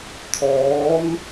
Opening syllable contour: rising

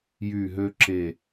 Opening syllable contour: falling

